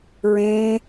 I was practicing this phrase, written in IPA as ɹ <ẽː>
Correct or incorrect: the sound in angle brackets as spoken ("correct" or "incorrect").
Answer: correct